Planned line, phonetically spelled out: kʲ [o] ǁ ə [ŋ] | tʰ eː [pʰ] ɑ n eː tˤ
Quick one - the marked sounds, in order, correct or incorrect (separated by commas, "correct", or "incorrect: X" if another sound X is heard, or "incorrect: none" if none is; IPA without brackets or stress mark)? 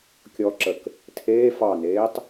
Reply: incorrect: ɔ, incorrect: k, incorrect: f